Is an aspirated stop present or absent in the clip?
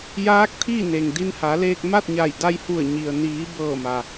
present